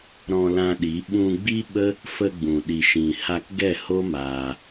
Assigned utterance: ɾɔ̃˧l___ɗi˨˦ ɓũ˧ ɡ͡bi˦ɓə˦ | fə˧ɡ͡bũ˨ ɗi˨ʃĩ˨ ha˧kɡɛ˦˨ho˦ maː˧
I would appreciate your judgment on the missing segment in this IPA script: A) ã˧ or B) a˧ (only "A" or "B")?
A